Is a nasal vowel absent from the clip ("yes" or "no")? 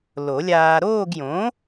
no